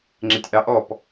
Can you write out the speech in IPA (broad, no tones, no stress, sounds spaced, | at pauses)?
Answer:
ŋ͡ǁ ɪ tʲ ʔ ɑ ʔ ɔ p